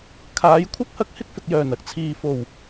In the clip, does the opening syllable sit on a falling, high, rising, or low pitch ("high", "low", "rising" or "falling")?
rising